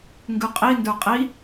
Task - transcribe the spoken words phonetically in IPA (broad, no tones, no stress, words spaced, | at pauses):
ŋɡʉqʼi ndə˞qʼi